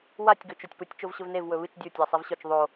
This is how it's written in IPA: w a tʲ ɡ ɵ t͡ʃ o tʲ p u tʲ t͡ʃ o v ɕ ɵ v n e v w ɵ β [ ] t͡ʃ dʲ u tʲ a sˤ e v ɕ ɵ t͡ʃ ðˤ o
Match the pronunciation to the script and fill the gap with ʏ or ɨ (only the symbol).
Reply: ɨ